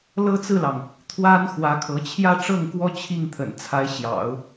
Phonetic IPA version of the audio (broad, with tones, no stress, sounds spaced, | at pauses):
l ɤ˥ t͡s ɹ̩˥˩ l ɑ˩ ŋ | t̪ʰ w a˥ n x w ä˧˥ kʰ ɤ˧˥ t͡ɕʰ j ä˥˧ ʈ͡ʂ ɤ˥˩ ŋ k w ɔ˥ t͡ɕʰ i˥˩ ŋ t̪ʰ ə̰˨˩ n t͡sʰ a˧˥ ɪ̯ ɕ j ɑ̰˨˩˦ ʊ̯